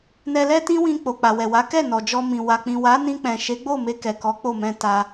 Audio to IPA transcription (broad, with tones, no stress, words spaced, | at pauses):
nɛ˧lɛ˦tĩ˦wĩ˧ k͡po˨ k͡pa˨wɛ˨ wa˨˦ kɛ˦˨ nɔ˨d͡ʒɔ˧mĩ˨ wa˨k͡pĩ˨wa˨˦ nĩ˧k͡pɛ̃˨ʃe˨˦ɡ͡bo˦˨ me˧kɛ˨kɔ˨˦ k͡po˦˨mɛ̃˧ ta˧